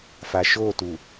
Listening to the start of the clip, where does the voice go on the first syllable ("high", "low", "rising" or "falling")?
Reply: low